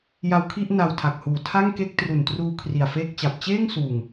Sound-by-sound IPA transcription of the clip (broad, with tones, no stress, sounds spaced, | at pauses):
j a˧ w kʰ i˥˩ ʔ n a˧ w tʰ a˨˩ k̚ h uː˨˩ tʰ a˥˩ ŋ k e˥˩ k̚ t r u˨˩ n t r uː˧ kʰ r i˨˩ a̯ f eː˥˩ k̚ t͡ɕ a˨˩ p̚ t͡ɕ eː˥˩ ŋ s uː˨˩ ŋ